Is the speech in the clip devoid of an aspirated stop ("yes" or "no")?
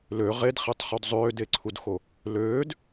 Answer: no